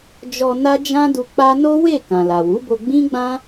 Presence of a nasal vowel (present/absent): present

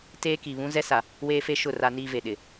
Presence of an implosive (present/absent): present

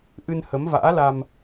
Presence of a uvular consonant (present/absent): absent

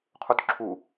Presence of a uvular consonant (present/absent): present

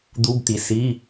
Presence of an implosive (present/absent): absent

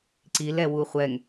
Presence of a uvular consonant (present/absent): present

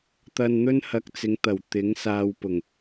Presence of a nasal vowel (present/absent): absent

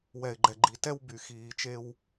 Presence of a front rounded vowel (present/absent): present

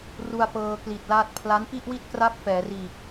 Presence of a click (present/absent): absent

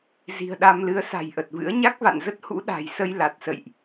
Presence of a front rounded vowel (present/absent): absent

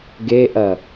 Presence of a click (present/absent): absent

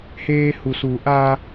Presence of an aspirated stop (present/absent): absent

